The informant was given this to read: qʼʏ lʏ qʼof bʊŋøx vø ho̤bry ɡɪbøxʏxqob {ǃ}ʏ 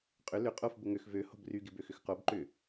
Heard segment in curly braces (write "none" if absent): ǃ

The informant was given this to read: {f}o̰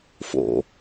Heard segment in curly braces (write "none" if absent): f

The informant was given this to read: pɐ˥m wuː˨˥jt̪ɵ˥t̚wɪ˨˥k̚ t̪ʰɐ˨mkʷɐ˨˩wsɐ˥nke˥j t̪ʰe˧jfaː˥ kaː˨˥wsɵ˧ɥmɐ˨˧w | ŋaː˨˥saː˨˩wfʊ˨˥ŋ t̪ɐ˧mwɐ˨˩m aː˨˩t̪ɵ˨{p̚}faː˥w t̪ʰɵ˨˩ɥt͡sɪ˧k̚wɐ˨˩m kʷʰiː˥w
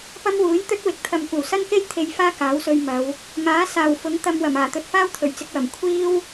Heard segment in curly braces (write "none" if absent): t̚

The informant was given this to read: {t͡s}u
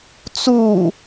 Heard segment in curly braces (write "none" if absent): t͡s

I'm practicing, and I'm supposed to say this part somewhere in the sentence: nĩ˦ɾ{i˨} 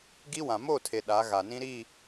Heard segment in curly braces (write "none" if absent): i˦˨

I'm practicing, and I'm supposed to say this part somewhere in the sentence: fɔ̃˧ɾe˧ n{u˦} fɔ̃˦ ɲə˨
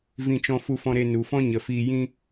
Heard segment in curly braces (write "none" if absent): u˨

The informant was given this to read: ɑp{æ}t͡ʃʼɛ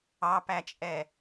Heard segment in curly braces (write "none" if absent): æ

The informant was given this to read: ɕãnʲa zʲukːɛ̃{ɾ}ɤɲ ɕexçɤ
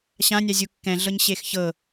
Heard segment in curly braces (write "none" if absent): ɮ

